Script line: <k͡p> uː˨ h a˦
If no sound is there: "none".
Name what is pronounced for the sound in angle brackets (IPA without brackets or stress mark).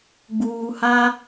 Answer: ɡ͡b